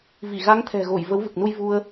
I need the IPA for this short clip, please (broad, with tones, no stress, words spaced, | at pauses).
vi˧˩ɣa˨˦ŋt̪ʰɛ̤˨˩ ɣo˧˩j və˨˦w vɨ˨˩k̚nu˧j vu˧ə̯